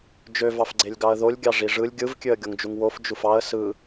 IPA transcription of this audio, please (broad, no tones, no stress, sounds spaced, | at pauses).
d͡ʒ ø v ɑ f ɡ͡ǀ e lʲ ɡ ɑ ə̯ ð o lʲ ɡʲ ɑ ʐ i ʐ ɯ lʲ ɡʲ ɯ v kʲ ø ə̯ ɡʲ o ŋ d͡ʒ u ŋ w o f d͡ʒ u f ɑ ə̯ s ɯ